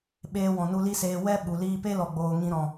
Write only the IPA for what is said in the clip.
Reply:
ɓeː˧wɔ̃˨nu˧ li˦seː˧ wɛ˦ ɓu˨liː˧ pe˦lɔ˨ɡ͡boː˨ ŋĩ˧ɾɔ̃˨

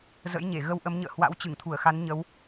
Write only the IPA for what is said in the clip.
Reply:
zə̰˧˥jɲe˧˩ ɣə˧wʔə˨˦mɲə̰ː˧˨ hwa̰˧˥wt͡ɕɨ˧˩ŋt̪ʰu˧˩ə̯xa˨˦n ɲə˨˦w

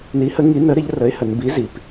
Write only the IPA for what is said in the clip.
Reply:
ni˨˥hə˨˥ ŋi˨˥nə˨˥ ɾɪ˨˥ʎ rə˨˥ɪ̯hə˩˧nbi˨˥ zi˩˧p

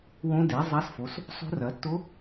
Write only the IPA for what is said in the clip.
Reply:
wõ˦˥de˨˥ zˤa˦˥sfo˨˥s | sˤo̤˦˥rɐ˨˥ tːo˦˥

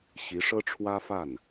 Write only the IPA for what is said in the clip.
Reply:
ɕi˧˥ʂɤ˥ʈ͡ʂʰwä˥fa˥˩n

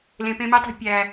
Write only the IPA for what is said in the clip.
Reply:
lẽ˨pẽ˧mi˧tˤe̤˧ pʲæ˨

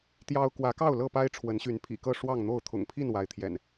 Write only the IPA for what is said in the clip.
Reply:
t̪jɑ˦ʊ̯ kwä˨˦kɑ˥˨ʊ̯ lɤ˥˨pa˦ɪ̯ ʈ͡ʂʰwə˨˦nɕy˨˦npʰḭ˨˩kɤ˥˨ ʂwɑ˥˨ŋn̪o˥˨ʊ̯ t̪ʰʊ̰˨˩ŋpʰi˥˨n wa˨˦ɪ̯t̪ʰjɛ̰˨˩n

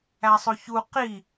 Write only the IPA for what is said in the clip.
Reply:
æsˤoçu qi

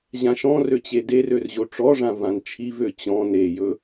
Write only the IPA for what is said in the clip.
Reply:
ʑãʃɔ̃rø t͡ɕederør ʑoʈ͡ʂɔʐã vãnt͡ʃʰivø t͡ɕɔ̃ nejɵ

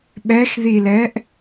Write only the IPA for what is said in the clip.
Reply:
ɓɛxðilɛːʔ

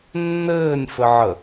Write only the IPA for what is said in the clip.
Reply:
nːɘːnʲ fɘʕə

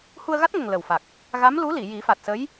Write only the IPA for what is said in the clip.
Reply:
hu˧ə̯ɣa˦˥t̚ŋə˨˩ŋ lə˨˩w fa˨˩k̚ | ɣa˧˥m lu˧˥li˨˩˨ ji˨˩˦fa˨˩t̚sə˧˥j

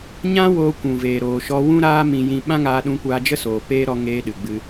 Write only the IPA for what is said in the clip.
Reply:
ɲã˦ woː˧kʷũ˨veː˨ ɾoː˨ ʃɔ˧wũ˦ ɾaː˦ mĩ˨jĩ˨ ɓã˦ŋaː˧ɗũ˧ kʷaː˧d͡ʒə˦soː˨ peː˦ ɾɔ˧ŋeː˧ ɗɨ˨ɡ͡bɨ˧

